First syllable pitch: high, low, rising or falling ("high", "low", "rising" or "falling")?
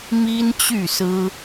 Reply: high